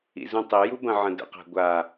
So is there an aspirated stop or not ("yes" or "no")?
no